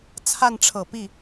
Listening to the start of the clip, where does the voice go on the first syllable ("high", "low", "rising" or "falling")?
falling